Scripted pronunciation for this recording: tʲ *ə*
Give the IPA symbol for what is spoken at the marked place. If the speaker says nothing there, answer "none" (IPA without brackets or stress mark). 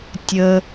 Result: ə